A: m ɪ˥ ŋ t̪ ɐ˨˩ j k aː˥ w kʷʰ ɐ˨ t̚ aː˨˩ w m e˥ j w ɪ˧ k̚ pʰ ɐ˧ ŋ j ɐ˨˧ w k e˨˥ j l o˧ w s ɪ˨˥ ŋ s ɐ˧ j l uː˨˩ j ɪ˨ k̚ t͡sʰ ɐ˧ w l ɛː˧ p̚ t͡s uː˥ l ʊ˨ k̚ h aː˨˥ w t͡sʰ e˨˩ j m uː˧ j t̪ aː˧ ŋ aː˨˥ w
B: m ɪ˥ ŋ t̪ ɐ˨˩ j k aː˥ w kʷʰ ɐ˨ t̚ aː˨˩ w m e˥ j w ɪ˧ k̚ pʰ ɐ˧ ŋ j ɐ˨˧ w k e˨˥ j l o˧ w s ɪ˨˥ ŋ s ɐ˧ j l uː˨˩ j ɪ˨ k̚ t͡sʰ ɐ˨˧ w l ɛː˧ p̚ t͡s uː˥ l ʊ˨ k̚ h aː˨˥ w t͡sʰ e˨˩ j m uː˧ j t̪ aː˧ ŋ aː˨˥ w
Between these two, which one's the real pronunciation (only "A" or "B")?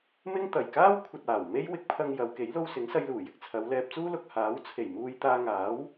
B